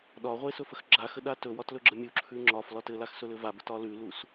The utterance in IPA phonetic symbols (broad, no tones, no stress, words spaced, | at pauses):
ɗɒʁʷe sɵfəxɡ͡ǁaxə ɗatɵwɒt lɵɡ͡ǁəmʲuǁʰʉ ŋ͡ǁɒf lɒtɘlax sɵlɘvabət ɒlʉlus